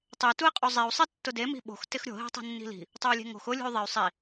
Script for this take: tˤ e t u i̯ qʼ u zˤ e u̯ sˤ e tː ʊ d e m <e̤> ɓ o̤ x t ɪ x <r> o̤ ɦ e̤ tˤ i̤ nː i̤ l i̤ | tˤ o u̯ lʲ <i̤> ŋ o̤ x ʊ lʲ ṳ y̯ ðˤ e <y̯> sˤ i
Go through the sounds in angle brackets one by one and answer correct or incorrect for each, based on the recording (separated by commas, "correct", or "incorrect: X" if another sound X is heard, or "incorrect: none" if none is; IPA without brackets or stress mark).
incorrect: i̤, incorrect: ɾʲ, incorrect: e̤, correct